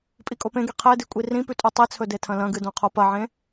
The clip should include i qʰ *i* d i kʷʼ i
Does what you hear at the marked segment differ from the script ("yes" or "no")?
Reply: yes